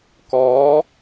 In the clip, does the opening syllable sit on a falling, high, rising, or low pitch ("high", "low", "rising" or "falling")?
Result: rising